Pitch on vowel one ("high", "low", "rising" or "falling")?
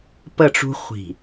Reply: falling